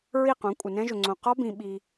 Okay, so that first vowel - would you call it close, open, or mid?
close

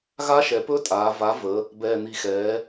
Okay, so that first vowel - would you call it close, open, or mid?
open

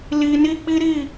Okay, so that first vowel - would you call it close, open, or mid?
close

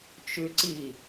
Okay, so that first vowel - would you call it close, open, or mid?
close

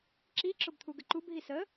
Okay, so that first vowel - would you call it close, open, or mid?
close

